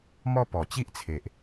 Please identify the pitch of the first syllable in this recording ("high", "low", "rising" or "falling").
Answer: high